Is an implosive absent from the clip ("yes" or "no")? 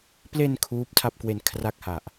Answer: yes